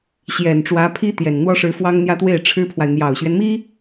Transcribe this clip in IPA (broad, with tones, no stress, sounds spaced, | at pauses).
ɕ j ɛ˨˩ n ʈ͡ʂ w ä˧˥ pʰ i˥ t̪ j ɛ˨˩ n n̪ w ɔ˥ ʂ ɻ̩˧˥ f w ɑ˥ ŋ n̪ j ä˥ t̪ w e˥˩ ɪ̯ ʈ͡ʂʰ ɻ̩˥ pʰ w a˨ ɪ̯ n̪ j ɑ˨˩ ʊ̯ ɕ ɥ ɛ˦ n m i˥